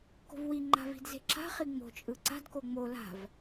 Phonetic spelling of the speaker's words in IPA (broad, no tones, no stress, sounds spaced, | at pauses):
k o̤ v w i ŋ͡ǃ a̤ v i̤ d z e̤ ǁ a̤ χ i ŋ͡m o̤ t͡ʃʼ ɯ ǀ a̤ d k o ŋ͡m o l a̤ v